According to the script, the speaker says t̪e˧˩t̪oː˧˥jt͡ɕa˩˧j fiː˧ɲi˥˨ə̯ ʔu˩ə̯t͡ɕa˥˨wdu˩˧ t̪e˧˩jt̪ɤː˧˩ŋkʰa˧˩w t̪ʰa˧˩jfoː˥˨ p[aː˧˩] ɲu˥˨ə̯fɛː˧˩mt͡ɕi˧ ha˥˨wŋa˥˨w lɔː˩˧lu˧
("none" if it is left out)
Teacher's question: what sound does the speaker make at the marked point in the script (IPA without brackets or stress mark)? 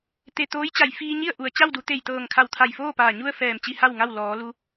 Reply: aː˧˩